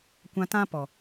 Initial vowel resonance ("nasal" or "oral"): nasal